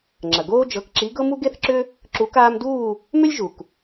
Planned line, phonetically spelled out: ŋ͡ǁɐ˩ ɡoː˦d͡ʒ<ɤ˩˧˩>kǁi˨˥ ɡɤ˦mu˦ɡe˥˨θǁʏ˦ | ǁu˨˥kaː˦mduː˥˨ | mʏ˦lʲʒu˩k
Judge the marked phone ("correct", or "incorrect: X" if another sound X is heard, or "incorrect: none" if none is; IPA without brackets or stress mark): correct